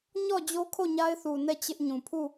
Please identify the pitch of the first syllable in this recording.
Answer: falling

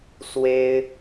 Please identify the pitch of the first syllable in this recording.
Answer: high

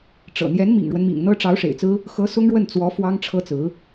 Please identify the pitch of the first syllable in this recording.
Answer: low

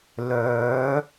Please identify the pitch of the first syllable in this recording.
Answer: rising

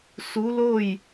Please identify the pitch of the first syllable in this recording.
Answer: rising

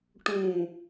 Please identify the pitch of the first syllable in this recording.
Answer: low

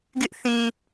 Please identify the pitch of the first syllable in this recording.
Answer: high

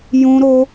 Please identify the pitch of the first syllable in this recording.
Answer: high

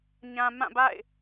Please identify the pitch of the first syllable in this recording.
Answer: low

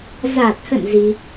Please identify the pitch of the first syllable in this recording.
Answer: low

